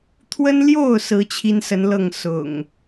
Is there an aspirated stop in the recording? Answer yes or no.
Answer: yes